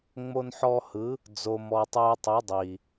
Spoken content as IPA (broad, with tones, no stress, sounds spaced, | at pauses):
ŋ͡m o˧ n ħ ɔ˧ h ɯ˨˦ | d͡z o˨ m ɔ˨ tˤ uː˧ tˤ u˨˦ dˤ i˨